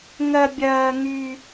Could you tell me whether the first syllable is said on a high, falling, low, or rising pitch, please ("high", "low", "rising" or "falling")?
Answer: high